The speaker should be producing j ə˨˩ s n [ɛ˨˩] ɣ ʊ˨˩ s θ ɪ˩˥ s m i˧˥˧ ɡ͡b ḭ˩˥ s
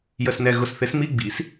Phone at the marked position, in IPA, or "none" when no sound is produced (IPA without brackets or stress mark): ɛ˨˩